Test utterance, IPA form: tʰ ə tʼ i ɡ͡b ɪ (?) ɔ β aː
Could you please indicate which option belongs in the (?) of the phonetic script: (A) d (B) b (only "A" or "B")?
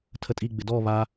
A